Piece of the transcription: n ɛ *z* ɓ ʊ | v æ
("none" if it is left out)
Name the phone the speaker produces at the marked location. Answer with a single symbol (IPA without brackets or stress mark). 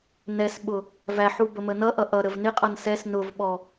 s